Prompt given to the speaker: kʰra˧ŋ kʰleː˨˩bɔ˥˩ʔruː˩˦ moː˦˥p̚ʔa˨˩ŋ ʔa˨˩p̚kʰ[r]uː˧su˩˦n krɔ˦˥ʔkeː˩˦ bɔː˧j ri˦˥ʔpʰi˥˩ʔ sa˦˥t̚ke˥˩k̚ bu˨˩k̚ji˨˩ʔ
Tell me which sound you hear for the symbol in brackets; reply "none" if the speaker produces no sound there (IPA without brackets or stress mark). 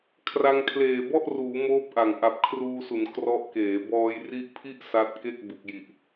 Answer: r